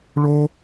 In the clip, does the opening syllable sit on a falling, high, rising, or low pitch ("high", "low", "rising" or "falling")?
high